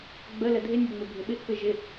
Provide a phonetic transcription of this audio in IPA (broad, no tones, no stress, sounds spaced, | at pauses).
ɡ͡b ə l ə dʱ ɪ nʲ ɘ ŋ͡m ɘ bʱ ɪ ɓ ɪ ʔ p ɪ ʒ ɪ